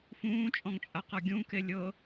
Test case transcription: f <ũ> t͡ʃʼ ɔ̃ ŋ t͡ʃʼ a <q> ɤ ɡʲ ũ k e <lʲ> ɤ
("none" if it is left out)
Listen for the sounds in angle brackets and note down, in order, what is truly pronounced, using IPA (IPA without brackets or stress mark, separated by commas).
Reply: ũː, q, lʲ